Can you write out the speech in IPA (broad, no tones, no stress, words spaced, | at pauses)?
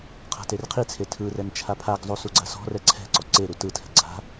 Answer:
qʰa̤terqʰit͡sʰe tʰɯrɛn t͡ʃʰapʰaɡzˤu suɡ͡ǀasɔ̤rɛ ǀʰɛ̤ǀɔ ǀe ɾutɯtʰɛ̤ ɡ͡ǀa̤